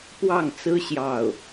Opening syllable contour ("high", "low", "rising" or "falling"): falling